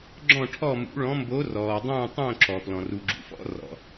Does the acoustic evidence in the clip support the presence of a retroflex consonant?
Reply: yes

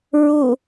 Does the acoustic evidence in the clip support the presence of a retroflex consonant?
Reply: no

